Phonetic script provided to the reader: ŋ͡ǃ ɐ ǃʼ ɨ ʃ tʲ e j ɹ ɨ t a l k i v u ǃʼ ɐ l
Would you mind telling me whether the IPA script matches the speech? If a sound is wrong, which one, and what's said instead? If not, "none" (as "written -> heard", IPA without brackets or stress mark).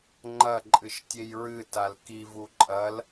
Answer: none